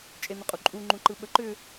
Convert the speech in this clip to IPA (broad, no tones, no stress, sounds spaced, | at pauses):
t͡ʃʼ e n̪ ʏ qʼ u ǃʼ u ŋ͡ǃ ũ ǃ ɯ ɓ ə ǃ ʏ